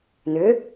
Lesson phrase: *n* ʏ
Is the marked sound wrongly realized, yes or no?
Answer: no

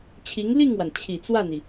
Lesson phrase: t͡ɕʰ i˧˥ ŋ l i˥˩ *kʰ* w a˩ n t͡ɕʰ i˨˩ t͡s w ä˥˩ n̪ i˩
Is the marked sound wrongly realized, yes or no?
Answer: yes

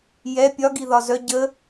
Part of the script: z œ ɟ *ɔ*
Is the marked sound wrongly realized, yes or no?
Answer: yes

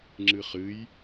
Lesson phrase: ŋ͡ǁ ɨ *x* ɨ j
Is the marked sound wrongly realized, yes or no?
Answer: yes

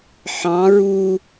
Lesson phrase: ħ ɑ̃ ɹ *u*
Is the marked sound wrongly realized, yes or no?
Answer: no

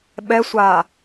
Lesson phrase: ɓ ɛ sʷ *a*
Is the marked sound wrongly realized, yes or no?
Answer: no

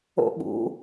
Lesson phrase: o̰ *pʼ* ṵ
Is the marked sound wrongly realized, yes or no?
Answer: yes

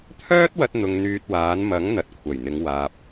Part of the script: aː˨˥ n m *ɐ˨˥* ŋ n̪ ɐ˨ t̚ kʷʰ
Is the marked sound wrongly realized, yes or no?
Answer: no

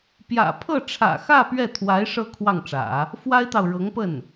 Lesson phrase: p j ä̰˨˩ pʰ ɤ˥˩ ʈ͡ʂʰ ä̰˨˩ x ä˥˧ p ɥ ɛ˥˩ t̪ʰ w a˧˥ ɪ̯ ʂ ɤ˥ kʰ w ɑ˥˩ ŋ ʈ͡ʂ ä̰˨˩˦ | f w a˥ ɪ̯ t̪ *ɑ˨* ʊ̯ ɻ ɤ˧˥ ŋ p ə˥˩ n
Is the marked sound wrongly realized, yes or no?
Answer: no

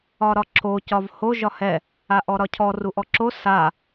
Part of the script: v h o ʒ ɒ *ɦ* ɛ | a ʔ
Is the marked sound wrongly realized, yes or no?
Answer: yes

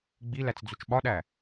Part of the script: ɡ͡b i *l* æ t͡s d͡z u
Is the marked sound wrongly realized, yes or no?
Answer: no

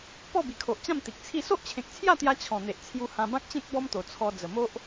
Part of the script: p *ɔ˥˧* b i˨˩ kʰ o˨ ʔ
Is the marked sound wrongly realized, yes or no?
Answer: no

